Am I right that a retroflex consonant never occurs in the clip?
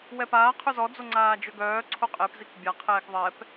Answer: yes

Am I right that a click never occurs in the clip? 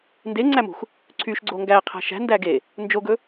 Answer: no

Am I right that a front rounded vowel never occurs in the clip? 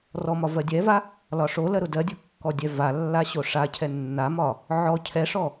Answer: yes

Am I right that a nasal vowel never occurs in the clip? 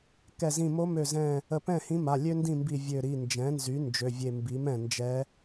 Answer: no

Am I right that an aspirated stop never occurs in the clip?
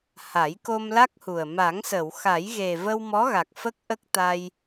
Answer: yes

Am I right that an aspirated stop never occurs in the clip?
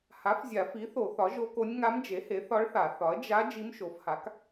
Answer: yes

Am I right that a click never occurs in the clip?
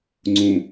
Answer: no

